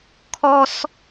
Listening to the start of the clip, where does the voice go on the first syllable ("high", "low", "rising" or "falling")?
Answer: high